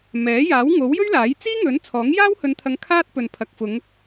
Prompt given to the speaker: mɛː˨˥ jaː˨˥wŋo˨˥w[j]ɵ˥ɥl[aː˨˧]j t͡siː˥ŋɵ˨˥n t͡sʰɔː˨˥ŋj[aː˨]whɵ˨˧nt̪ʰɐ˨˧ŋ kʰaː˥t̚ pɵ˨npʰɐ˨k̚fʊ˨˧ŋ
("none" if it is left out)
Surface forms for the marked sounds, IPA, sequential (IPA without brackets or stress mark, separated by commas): j, aː˨˥, aː˥